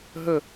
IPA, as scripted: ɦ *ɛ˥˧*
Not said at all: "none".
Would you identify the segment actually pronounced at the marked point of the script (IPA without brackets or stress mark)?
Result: ə˥˧